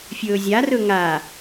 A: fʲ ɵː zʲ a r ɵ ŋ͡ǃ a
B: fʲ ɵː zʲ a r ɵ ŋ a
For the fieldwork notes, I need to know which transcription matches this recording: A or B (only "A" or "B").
B